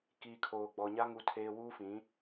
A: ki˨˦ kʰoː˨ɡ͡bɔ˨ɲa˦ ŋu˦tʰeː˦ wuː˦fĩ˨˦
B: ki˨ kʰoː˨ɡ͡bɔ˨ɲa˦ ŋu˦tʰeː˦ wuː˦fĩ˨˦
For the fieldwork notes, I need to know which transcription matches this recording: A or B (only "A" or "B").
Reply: B